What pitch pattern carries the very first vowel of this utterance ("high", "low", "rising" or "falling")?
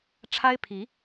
high